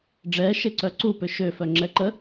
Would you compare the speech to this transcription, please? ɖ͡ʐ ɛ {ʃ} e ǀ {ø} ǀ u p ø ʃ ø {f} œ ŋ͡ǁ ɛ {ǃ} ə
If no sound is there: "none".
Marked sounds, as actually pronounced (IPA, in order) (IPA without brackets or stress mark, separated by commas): ʃ, œ, f, ǃ